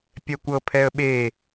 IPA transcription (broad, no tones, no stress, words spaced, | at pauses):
pʲɛkʷɤ pʰɛə̯ɓe